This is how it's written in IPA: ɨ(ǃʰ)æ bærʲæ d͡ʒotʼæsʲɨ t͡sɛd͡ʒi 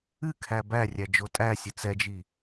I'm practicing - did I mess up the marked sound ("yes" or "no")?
yes